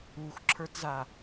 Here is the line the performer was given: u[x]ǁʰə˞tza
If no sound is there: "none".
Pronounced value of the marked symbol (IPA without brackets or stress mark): x